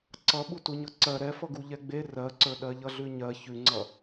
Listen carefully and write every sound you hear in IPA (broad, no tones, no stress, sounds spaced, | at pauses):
ǀ ʌ ɓ u t u ɲ ʌ ǀ ɜ ɾ ɛ f ʌ ɡ u ʎ ɛ ɡ͡b e r ɜ ǀ ə˞ ɗ ɜ ʎ ʌ ɮ ʉ ɲ ɜ ç ʉ ŋ͡ǀ ʌ